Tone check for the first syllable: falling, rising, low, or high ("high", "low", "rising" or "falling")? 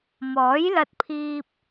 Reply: rising